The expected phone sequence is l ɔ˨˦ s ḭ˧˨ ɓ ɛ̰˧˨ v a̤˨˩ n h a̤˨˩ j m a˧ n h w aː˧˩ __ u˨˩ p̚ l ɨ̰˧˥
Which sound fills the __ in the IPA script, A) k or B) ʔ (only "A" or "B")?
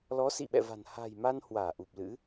B